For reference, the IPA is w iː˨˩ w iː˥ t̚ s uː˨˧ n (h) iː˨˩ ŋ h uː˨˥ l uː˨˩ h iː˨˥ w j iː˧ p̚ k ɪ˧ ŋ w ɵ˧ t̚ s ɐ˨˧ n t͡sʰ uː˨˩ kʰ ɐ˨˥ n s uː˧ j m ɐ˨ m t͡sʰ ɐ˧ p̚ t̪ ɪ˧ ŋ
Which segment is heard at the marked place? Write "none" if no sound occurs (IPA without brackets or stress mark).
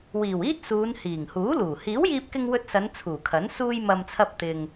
h